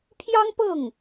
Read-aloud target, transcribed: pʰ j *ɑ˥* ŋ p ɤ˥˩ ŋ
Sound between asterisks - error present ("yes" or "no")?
no